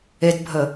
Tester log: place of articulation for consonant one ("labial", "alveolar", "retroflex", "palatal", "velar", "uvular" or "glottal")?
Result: alveolar